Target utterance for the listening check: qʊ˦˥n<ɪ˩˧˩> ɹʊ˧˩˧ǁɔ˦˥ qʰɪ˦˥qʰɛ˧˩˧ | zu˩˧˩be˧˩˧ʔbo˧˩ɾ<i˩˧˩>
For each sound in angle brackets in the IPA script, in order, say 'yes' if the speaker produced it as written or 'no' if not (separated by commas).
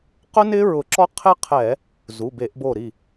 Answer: no, no